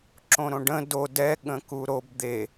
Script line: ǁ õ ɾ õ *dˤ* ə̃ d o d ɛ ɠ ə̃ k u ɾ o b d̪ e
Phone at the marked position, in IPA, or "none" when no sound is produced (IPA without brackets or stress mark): ɖ